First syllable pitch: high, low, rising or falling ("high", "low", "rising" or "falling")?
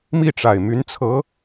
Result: falling